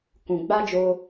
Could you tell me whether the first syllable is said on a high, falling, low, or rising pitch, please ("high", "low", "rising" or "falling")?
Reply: low